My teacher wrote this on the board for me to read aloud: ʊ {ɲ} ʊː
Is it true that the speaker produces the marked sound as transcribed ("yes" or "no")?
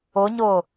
yes